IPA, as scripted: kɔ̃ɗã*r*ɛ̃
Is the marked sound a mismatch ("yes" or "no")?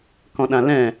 yes